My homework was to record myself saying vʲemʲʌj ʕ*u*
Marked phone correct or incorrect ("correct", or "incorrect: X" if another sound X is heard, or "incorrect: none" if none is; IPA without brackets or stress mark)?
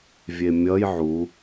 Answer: correct